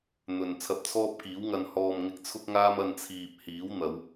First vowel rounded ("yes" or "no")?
yes